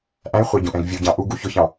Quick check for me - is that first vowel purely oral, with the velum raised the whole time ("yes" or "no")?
no